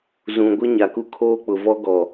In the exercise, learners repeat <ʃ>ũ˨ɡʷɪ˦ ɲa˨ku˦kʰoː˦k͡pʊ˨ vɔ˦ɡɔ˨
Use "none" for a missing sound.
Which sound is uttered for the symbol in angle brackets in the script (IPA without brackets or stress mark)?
z